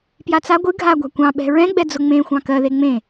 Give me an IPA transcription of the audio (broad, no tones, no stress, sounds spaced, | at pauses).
p j a t͡s a ɡʷ ɨ ɡʱ a ɡʷ a̤ kʷ ɑ̃ ɓ ɛ̤ ɹ ɛ̃ ɡ͡b ɛ d͡z ʊ ŋ͡m ẽ xʷ ɑ̃ k ɜ ð e ŋ͡m ẽ